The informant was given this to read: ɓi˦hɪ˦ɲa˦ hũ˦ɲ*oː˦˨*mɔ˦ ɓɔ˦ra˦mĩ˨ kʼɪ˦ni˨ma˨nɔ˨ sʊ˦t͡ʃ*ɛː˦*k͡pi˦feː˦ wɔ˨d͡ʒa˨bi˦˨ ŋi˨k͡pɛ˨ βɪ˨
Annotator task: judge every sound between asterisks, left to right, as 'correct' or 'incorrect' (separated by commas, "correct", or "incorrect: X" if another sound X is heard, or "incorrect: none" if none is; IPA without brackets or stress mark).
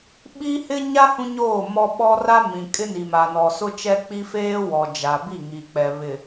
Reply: correct, incorrect: ɛ˦